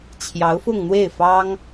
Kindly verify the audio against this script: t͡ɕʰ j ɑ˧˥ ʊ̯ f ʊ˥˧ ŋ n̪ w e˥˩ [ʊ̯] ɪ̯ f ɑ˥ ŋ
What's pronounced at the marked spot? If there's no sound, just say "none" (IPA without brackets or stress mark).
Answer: none